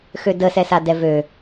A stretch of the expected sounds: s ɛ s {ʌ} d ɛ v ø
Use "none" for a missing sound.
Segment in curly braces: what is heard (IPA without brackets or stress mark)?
a